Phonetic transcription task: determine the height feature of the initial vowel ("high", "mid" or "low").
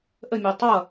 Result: mid